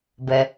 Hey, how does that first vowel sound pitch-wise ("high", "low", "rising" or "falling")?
low